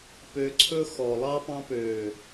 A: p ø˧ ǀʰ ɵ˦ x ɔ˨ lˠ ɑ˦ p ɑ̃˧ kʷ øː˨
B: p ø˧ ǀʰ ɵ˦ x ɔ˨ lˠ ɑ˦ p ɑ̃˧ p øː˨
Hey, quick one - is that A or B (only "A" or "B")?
B